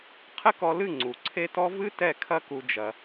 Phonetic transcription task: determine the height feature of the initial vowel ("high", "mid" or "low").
mid